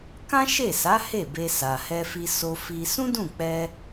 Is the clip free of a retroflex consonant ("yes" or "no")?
yes